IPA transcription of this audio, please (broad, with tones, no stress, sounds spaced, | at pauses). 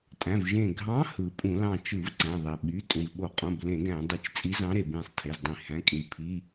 tʼ æ̃˩˧˩ v ʒ ẽ˧˩ ɡʱ ɑ̃˧˥ h ɯ˩ pʼ ũ˧˩˧ l ɑ̃˧˩ t͡ʃ ɯ˧˩˧ v ǀ æ̃˩˧˩ ðˤ e˩ ɓ y˩˧˩ tʼ ũ˩ v ɓ o˧˩˧ qʼ õ˩˧˩ b l ẽ˧˩˧ ɡ æ̃˧˩˧ dˤ e˧˩ t͡ʃ t͡sʼ i˧˥ z ɑ̃˧˥ ɾ e˩ b ẽ˧˩ sˤ tʰ e˩˧˩ z dˤ ĩ˧˩˧ h æ̃˩˧˩ kʼ ĩ˩ v pʰ i˩˧˩